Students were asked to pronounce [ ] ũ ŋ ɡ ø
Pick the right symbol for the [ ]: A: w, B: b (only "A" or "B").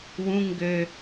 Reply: A